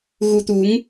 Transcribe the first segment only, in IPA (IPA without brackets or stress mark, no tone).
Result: ɣ